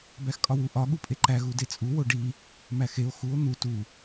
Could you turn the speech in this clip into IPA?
b æ x kʼ ɒ w u ʔ ɒ ɠ u pʼ e ǃ æ ɣ u d e t͡sʼ u w o ɖ i | m æ x e o̯ x u o̯ n̪ u t u

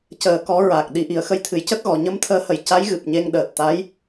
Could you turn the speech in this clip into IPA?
c əː˨˩ k ɔ˨˩˦ ɹ a˨˩ k̚ ɗ i˨˩˦ ʔ i˨˩˨ ə̯ x ə˧ j t̪ʰ ɨ˨˩ j c ə˦˥ k̚ ɣ ɔ˨˩˨ ɲ ə˧˥ m t̪ʰ əː˧˥ h ə˨˩ j c a˧˥ j ɣ ɨ˨˩ p̚ ɲ e˧ ŋ ɗ əː˨˩ t̚ t̪ a˧˥ j

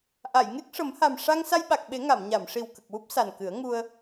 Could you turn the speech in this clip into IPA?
ʔ a˨˩˨ j ŋ e˦˥ k̚ ʂ ə˨˩˦ m h a˨˩ m ʂ a˧ ŋ s a˧ j ɓ a˨˩ k̚ ɓ e˨˩˦ ŋ a˨˩˨ m ɲ a˨˩˨ m ʂ i˨˩ w k ə˨˩ k̚ w u˦˥ p̚ s a˨˩ n k ɨ˨˩˦ ə̯ ŋ u˧ ə̯

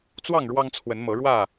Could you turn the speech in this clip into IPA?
t͡s w ɑ˥˨ ŋ ɻ w ɑ˦ ŋ t͡sʰ w ə˨˦ n m ɤ˨˦ ɻ w ä˥˨

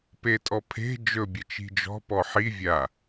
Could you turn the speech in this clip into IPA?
p e tʼ ɔ pʰ e̤ d͡ʒ ɵ bʲ ə t͡ʃ i̤ d͡ʒ ɔ̤ p ɔ ħ i vʲ a

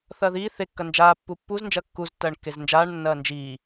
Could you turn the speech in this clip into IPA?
θ ɐː ð iː θ e kː ɐ n d͡ʒ aː pː u pː u z n d͡ʒ ɐ kː u z tː ɐː ɳ kː e z n d͡ʒ aː ɳ nː ɐː n d͡ʒ iː

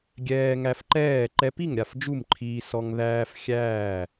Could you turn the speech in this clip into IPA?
ɡʲ ɛː˧ ŋ æ˧ f ǃ ɛː˥˨ ǃ ɛ˧ p i˥˨ ŋ ɾʲ a˥˨ f d͡ʒ u˥˨ m ǃʰ iː˧ s ɔ˧ ŋ ð æː˧ f xʲ æː˥˨

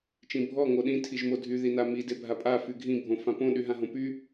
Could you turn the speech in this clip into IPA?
t͡ʃ ĩ bʱ ɔ ŋ o ɗ ĩ tʰ i ʒ m o dʱ y ð i n a m i d e bʱ a pʼ a f y ɡʱ ĩ bʱ õ f ã p õ ɗ y ɦ ã ɦ õ p y

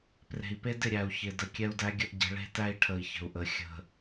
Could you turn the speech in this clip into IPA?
p r e̤˨ i̯ p e˦ d ɪ˦˨ ɾʲ æ˨ u̯ ç ɪ˨ d ə˨ kʲ ɛ˦ u̯ d æ˦ ɡʲ ə˦ ʔ ɟ ə̤˨˦ ɭ e̤˦ t æ˦ i̯ ʈʰ ə˨ i̯ ç ə̤˨ u̯ ʔ ə˨ xʲ ə̤˨

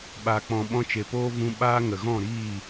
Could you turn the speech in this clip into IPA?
ɓ aː˨ k͡p ɔ̃˨ ɓ ɔ̃˧ t͡ʃ e˨ p oː˦ v ũ˧ ɓ aː˦ ŋ ə˨ ɣ ɔ̃˦˨ ɾ iː˦˨

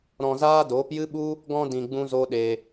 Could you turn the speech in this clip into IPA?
ɾ ɔ̃˧ z aː˦ d oː˨˦ p j ɨ˦ ɓ u˦ | ɡ ɔ̃˧ d ĩ˨ ɡ͡b ũ˦ z o˦ ɗ e˧

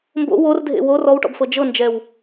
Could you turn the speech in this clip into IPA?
m b o̰ w o r dʱ ḛ w o r ɔ w ʈ ɔ̰ b f ɤ d͡ʒ ɤ n d͡ʒ ɛ w

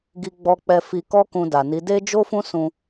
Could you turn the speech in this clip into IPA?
ɡ i˧ ɡ͡b ɔ˧ k͡p ɛ˧ f i˧ k ɔ˦ k ũ˧ d a˨ n i˨˦ d e˦ d͡ʒ o˦ f ũ˦ s ũ˧

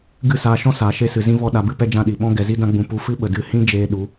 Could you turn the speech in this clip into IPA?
ɡ ɨ˦˨ s aː˧ ʃ ɔ̃˦ s aː˧ ʃ e˦ s ɨ˧ z ĩ˦ v ɔ˦ ɗ a˧ b ɨ˦ p ɛ˦ d͡ʒ ã˦ ɗ i˨ ɓ ɔ̃˦ ɡ ɛ˧ z i˦ d ã˦ ɡ͡b ũ˧ p u˧ f ɨ˦ ɓ ə˨ d ɨ˦˨ h ĩ˦ d͡ʒ eː˧ ɗ u˨˦

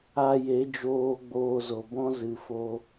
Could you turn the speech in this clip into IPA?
a˧ j e˨˦ d͡ʒ oː˧ ɡ͡b oː˧ z o˨ b ɔ̃˦ z ɨ˨ f o˧

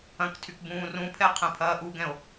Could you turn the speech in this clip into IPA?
ɐ̃ k tʰ y k b ũː r ũ pʰ ɛ qʰ ɛ̃ pʰ ɐː ʔ u ɡ ɛ̃ o̯

